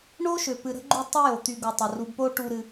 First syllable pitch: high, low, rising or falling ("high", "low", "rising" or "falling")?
high